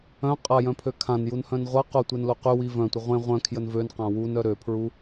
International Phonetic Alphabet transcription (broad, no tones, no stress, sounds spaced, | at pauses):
œ̃ qʼ a j œ̃ pʰ ø kʰ ã n j u n h œ̃ n ʁʷ a q o tʷ e n l o q y w i v œ̃ tʷ ə ʁʷ ẽ ʁʷ œ̃ kʰ j ə n v ø n q ã w u n œ ɾ ø pʰ ɹ u